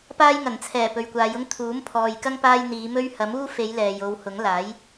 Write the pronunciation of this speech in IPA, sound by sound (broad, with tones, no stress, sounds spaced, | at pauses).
p aː˥ j ŋ ɐ˨˩ n t͡sʰ ɛː˨˩ p ɵ˨ ɥ kʷ aː˨˧ j ʊ˥ ŋ t̪ʰ uː˨˥ m pʰ ɔː˨ j k ɐ˥ ŋ p aː˥ j n̪ iː˨˧ m ɵ˥ ɥ h ɐ˨˥ m uː˥ f e˨˧ j l ɛː˨ j o˨˧ w h ʊ˨˥ ŋ l aː˨˥ j